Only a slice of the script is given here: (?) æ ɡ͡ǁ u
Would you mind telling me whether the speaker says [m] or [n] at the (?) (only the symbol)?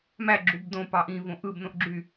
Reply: m